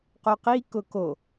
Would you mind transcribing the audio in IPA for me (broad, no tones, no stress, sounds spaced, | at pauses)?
q o q i k ʊ k o